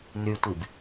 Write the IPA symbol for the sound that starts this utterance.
n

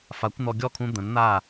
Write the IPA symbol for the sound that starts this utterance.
f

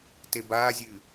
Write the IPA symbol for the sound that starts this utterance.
t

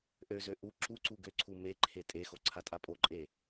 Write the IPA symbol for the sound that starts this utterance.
ʔ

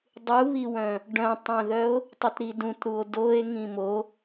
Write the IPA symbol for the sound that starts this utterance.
dˤ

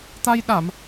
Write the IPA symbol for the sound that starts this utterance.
t̪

